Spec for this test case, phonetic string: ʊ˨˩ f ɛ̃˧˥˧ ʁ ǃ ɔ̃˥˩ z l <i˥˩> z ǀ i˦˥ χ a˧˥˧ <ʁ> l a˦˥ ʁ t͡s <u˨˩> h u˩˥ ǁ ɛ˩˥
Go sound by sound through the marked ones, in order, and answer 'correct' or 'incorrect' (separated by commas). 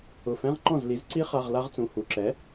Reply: incorrect, correct, incorrect